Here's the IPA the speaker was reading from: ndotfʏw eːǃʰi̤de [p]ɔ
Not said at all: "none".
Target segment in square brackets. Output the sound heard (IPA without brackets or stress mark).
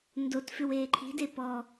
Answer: p